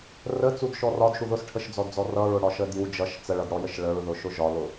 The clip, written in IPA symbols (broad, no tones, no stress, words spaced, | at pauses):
rət͡sudʃɔ rɒdʃu ðʊsʈʰəʃd͡zɔdd͡zɔ rʌɹʊɽɒʃə dju d͡ʒʌʃ t͡səɭʌdɽɔjəʃ ɭəɹðʊʃʊ ʒɒlʊ